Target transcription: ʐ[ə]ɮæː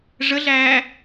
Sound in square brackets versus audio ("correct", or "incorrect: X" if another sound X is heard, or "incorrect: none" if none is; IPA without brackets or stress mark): correct